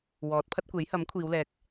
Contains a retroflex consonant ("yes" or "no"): no